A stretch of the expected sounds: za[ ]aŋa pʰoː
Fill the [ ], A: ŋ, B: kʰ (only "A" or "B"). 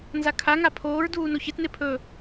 B